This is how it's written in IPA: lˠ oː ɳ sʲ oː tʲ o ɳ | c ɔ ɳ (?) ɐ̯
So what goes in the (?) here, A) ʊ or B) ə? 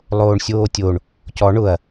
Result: A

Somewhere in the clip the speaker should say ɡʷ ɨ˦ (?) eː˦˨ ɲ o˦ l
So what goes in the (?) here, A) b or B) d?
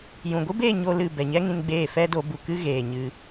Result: A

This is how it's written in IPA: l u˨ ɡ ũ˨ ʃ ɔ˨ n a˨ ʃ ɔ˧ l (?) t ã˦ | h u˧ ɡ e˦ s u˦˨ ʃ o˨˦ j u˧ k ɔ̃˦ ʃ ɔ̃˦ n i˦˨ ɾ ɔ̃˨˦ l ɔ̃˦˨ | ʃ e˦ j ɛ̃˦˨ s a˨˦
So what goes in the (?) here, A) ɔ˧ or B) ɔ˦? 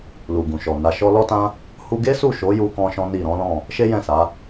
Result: B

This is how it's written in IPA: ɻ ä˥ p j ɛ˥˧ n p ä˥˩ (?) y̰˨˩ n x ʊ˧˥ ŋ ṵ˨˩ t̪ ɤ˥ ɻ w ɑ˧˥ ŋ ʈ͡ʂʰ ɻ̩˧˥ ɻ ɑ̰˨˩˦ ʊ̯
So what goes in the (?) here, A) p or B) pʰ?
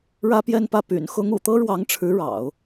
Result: A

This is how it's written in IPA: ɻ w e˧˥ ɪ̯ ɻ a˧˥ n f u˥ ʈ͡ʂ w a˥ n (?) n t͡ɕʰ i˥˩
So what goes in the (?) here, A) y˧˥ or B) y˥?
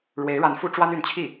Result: A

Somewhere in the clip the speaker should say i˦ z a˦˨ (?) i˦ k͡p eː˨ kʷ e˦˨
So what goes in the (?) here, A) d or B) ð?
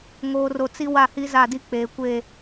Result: A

